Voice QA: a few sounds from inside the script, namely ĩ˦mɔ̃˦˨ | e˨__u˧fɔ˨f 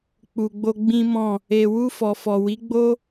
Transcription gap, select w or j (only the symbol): w